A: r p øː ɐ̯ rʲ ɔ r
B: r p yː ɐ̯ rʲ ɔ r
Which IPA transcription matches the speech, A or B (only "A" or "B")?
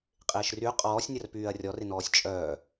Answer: B